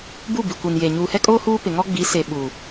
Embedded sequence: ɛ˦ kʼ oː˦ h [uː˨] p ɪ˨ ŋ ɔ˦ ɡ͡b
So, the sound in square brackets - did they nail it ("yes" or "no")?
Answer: no